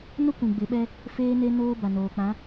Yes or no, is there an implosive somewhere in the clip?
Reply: yes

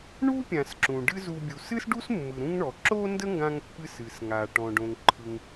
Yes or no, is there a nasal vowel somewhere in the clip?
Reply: yes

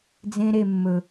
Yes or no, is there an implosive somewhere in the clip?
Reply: no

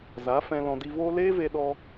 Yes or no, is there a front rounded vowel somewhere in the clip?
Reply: no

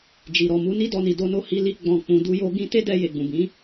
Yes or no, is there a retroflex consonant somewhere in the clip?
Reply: no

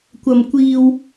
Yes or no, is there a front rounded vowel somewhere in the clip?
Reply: no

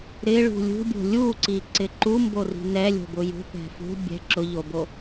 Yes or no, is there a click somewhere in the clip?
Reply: yes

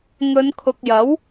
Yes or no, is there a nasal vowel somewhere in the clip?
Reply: no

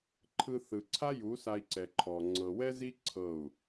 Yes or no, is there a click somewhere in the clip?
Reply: yes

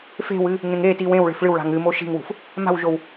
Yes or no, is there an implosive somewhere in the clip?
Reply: no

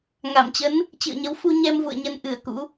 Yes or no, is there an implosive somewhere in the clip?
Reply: no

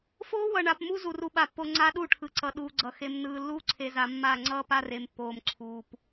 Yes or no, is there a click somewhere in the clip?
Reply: yes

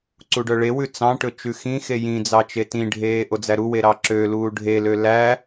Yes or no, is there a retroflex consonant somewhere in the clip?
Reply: yes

